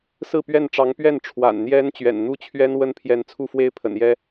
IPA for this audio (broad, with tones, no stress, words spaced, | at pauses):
sɹ̩˥˧ pɥɛ˥˩nʈ͡ʂɑ˧˥ŋpɥɛ˥˩n ʈ͡ʂʰwa̰˨˩n n̪jɛ˥nt͡ɕɥɛ̰˨˩n n̪u˥t͡ɕʰɥɛ˥n wə˥npʰjɛ˧˥nt͡sʰu˥˧fwe˥˩ɪ̯ pʰə̰˨˩njɛ˥